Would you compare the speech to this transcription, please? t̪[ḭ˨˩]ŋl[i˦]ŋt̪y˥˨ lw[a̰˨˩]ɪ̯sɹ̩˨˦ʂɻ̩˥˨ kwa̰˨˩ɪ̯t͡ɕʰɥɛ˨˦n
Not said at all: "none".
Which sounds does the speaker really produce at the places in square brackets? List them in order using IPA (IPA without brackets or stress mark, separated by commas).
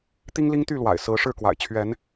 i˦, i˦, a̰˨˩